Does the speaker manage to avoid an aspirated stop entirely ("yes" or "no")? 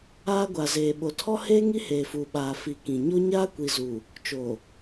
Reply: no